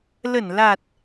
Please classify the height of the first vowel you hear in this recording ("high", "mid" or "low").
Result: mid